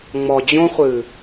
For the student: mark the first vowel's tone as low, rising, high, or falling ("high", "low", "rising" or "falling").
low